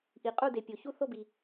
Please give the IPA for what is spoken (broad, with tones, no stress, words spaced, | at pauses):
ʔi˨qʼu˥˨de˨pʲo˨ çu˥˨θo˥˨bi˨